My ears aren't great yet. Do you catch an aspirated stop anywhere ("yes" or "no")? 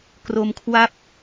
yes